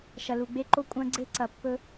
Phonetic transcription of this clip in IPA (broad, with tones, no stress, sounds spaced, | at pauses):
ʃ ɐ˨ l u˨ ɡ͡b e˦ ǃ o˦ kʷʼ ɐ̃˦ ɡ͡ǀ e˦ ǀ ɐ˨ pː ɵ˦